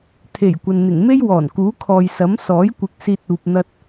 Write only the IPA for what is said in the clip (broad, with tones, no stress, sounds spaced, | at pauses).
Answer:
t̪ʰ e˨˩ j kʷ ɐ˨ n n̪ ɪ˨˩ ŋ m e˥ j w ɔː˨˩ n k uː˨˥ kʰ ɔː˨ j s ɐ˨˥ m s ɔː˨˥ j kʷ ɪ˨˥ k̚ s iː˧ t̚ uː˨ p̚ n̪ ɐ˧ t̚